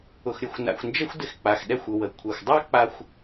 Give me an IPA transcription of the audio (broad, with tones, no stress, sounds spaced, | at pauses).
ʊ˩ x ɾʲ ə˩ xʷ n a̰˩ xʷ n d͡ʒ ə˥ xʷ d ɪ˧ x k͡p a˩ x ɗ ɛ˧ xʷ ʊ˩ w ə˩ kʷʰ ɛ˩ xʷ dˤ a˥ k͡p a˧ xʷ